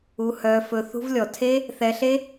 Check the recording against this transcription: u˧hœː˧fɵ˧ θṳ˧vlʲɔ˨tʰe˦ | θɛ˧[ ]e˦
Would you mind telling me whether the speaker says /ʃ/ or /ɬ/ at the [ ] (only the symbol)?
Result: ɬ